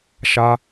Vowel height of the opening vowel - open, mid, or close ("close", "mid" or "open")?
open